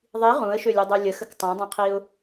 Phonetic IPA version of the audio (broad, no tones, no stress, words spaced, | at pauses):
ðˤi ʁũə̯ʃølʲodˤø lʲəxək tˤõdˤẽqʰiʊ̯